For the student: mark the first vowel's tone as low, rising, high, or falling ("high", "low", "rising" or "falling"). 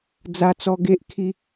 high